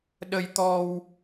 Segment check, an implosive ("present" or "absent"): present